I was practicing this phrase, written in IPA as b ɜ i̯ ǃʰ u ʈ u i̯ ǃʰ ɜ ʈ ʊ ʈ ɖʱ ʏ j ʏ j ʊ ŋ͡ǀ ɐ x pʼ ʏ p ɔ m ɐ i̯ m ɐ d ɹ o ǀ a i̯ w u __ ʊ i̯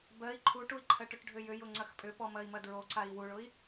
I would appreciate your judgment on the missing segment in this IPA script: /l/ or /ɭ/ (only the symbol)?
ɭ